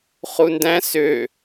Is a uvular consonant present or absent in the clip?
present